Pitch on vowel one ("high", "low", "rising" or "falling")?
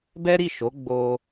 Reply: high